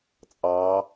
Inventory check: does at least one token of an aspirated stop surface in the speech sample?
no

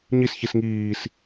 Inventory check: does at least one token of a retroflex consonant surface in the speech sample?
no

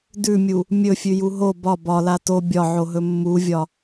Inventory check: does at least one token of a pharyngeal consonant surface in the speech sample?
yes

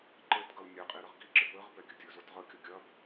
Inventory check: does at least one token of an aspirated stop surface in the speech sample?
no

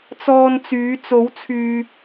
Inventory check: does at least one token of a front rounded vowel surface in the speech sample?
yes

